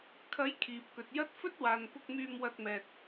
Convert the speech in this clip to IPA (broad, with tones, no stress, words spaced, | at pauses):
kʰɐ˨˥j kʰiː˨p̚kɵ˨t̚ jɐ˥t̚ fɵ˥t̚waː˨npʊ˧k̚myː˧m wɐ˧t̚mɛː˨t̚